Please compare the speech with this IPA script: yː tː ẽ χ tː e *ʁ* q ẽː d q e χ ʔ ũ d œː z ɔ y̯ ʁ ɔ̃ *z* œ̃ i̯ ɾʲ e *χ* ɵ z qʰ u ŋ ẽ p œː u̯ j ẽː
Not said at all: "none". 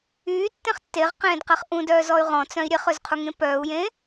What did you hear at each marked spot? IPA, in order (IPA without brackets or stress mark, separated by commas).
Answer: ʁ, t͡s, χ